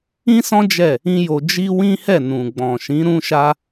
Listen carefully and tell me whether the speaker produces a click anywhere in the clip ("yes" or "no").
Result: no